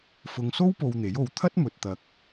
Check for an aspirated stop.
present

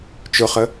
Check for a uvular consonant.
present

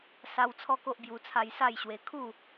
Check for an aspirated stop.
present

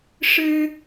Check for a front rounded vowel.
absent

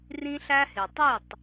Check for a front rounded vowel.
present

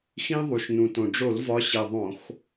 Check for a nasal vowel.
present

